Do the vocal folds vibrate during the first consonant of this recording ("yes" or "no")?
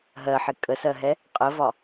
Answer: yes